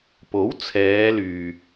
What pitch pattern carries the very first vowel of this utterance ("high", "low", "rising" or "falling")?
rising